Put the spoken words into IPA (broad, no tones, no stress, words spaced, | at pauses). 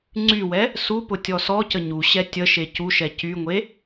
ŋ͡ǀywɛ | supʊ tʲɔsɔcə ɲuɕɛ tʲəʃe cuʃɛ cyŋʷe